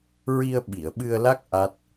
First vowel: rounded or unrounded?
unrounded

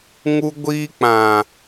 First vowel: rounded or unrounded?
rounded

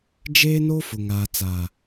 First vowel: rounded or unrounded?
unrounded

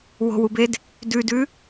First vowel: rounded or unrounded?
rounded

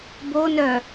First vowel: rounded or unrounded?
rounded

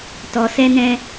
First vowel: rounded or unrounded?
rounded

